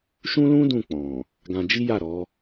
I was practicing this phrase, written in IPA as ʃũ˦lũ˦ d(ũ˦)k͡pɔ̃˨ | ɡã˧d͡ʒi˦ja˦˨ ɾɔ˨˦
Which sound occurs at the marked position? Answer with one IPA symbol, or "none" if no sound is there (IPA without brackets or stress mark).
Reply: ũ˦˨